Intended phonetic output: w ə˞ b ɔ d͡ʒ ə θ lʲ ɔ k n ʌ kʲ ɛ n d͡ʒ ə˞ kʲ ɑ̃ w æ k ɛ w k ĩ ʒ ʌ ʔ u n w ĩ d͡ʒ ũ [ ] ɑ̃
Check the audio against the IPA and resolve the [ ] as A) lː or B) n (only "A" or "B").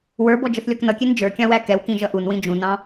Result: B